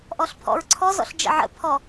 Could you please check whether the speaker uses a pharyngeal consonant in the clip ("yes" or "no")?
yes